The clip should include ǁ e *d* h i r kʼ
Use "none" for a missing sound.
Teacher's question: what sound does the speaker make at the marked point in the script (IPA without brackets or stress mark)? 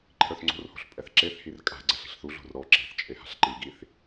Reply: θ